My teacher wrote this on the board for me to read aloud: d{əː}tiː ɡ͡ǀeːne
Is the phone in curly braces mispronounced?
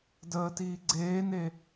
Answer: no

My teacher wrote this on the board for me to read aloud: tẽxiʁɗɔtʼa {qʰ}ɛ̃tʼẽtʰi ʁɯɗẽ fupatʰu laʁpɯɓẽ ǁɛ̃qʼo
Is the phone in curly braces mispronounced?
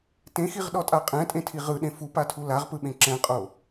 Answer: yes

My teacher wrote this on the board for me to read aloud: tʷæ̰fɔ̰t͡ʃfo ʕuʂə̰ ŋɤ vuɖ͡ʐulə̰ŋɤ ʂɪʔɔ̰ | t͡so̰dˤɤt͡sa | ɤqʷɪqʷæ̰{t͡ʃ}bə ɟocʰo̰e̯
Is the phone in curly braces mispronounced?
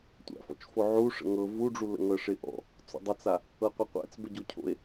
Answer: yes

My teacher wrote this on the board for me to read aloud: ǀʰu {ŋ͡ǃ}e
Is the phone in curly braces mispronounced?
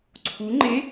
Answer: no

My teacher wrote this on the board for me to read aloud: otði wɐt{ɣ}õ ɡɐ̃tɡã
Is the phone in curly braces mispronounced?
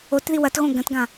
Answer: no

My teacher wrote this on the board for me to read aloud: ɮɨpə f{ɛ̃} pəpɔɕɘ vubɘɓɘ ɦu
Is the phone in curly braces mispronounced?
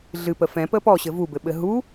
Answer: no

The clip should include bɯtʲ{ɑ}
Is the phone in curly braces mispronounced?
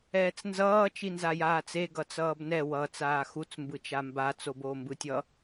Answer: yes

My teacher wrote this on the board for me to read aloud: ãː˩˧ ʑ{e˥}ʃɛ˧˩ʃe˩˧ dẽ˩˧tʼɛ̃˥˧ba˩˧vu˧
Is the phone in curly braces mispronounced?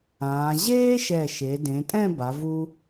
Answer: yes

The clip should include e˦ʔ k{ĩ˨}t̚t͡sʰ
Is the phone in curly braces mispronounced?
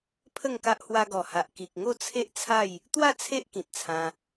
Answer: no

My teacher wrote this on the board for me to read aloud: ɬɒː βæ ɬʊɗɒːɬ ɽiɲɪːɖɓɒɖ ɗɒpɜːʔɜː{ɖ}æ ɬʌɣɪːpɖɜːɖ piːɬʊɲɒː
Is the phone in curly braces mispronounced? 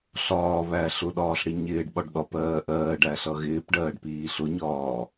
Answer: no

